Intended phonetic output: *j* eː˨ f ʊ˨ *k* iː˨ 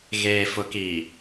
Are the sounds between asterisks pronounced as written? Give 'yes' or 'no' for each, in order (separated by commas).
no, yes